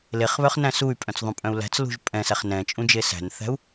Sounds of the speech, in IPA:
l e χ β œ χ n æ̃ s u y̯ pʼ œ̃ t͡s ðˤ ũ pʼ œ̃ u̯ l æ̤ t͡s l ṳ ʒ pʼ ɛ̃ s æ χ n ɛ̃ t͡ʃʼ ũ d͡ʒ e s æ̤ n θ æ̤ u̯

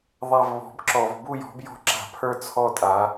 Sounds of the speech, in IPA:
ðˤ a˦˨ v β ɔ̤˨˦ b ǁ ɔ˧˩˧ v b u˦˨ j ɔ̤˨˦ b j ɔ̤˦˨ ǁ a̤˧˩˧ pʰ ə˞˦˨ t͡sʰ ɔ˦˨ tʼ a˨˦

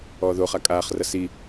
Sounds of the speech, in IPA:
ɔː ð o χ a kʼ aː χ r ɐ s i

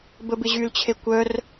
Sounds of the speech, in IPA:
b ə b ɪ ʑ y l t͡ɕʰ e kʷ œ r

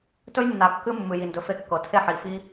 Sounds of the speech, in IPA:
t ɵ˦ j nː a˨ kː ɨ˦ mː ɨ˨ j i˨ n d ɵ˨ f e˦ kː ɤ˨ tʰ e˦˨ ħ i˨ f i˦

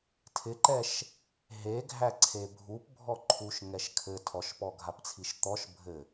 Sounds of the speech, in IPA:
tʰ ɪ ǃ ɛ ʃ | ɦ e ɡʱ æ ǀʰ e bʱ u p bʱ ɔ ǃʰ u ʃ ŋ ɛ ʃ kʰ ɘ tʰ ɔ ʃ p ɔ ɡʱ a p t͡sʰ i ʃ t̪ ɔ ʃ bʱ ɘ

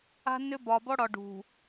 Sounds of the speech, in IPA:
a̤˦ nː ʏ˦ b ɒ˨ b ɔ˦ ɽ ɒ˨ ɖ ṳ˨

